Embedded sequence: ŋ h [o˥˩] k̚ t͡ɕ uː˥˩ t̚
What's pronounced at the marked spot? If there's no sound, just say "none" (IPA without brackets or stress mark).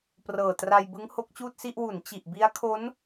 o˦˥